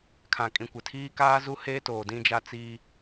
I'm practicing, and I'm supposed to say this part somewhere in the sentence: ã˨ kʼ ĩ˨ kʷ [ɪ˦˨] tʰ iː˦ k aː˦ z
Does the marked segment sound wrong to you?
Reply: yes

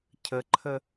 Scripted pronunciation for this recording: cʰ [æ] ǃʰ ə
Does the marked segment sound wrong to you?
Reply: yes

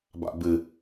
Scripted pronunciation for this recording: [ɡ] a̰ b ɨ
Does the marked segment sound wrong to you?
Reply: yes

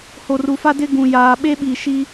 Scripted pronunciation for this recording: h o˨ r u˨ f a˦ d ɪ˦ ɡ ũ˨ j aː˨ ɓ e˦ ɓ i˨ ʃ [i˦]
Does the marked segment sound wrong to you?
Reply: no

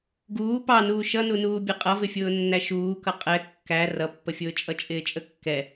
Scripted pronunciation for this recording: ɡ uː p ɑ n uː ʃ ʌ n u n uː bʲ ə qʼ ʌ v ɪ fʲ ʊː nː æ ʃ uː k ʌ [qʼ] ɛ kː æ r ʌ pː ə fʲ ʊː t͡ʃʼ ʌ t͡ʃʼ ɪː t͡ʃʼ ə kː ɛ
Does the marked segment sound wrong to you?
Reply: no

